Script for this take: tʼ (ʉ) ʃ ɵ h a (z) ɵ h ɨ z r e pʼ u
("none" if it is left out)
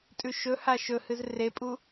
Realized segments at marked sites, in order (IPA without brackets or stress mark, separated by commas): ʉ, ʃ